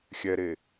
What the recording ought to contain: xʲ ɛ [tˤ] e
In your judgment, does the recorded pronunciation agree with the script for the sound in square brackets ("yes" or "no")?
no